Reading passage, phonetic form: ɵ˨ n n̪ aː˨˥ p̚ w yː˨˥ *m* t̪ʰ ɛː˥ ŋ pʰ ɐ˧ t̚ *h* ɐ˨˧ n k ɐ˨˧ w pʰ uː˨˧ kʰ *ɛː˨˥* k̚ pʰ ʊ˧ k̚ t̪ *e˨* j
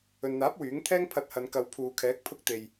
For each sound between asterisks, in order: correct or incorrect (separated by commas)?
incorrect, correct, correct, correct